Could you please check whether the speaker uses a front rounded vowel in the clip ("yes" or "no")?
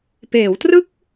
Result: no